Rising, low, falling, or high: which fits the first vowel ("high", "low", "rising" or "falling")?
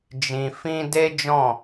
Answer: low